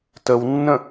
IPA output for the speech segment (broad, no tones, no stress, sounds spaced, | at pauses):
t ə w nː ə̃